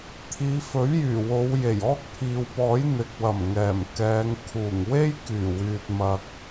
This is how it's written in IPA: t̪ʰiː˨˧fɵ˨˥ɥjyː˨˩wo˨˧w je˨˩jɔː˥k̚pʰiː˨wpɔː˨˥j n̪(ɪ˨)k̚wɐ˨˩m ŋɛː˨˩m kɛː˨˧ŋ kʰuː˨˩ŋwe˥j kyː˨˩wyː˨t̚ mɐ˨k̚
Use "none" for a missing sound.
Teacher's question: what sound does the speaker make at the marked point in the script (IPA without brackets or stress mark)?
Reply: ɪ˨